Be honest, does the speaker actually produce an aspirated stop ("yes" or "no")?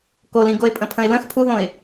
yes